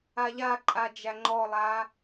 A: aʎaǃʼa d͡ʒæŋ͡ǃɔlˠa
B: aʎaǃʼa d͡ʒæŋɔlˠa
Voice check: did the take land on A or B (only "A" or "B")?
A